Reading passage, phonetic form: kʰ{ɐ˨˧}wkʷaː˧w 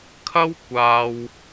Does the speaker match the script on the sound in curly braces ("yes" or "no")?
no